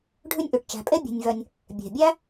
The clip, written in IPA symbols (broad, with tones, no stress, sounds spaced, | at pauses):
ɖʱ ʉ˦ nʲ ʔ ʉ˩ ʈ t͡ʃ æ̤˨ pʼ e˥ bʲ e̤˨ nʲ v œ˨ nʲ | bʲ e̤˩ bʲ æ˦